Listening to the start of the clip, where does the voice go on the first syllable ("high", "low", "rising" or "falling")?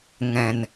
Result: low